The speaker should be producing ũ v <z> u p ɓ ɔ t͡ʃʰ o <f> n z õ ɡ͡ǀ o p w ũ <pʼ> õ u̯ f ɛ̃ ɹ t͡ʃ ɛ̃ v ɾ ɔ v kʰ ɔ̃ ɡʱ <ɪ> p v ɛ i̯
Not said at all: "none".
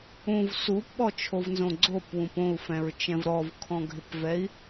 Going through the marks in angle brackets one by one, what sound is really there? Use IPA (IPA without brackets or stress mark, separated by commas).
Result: s, v, p, ɪ